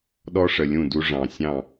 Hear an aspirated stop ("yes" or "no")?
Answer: no